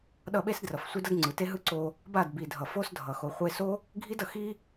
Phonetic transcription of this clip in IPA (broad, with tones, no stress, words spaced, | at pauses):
ɗʌ˦˨ɓe˦sdrʌ˨f sʷi˦dʌ˦d ŋ͡ǀɯ˨te˦ɦɯ˦ ǀo˧ | ba˦˨dbi˨ dʱʌ˨fo˦sdʱʌ˨ xo˨χʷe˧so˦ | ɡʱi˦dʌ˨ xi˦